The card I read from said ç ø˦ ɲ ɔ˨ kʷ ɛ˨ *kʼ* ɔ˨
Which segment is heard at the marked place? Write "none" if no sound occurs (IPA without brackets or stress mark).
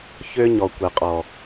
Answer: qʼ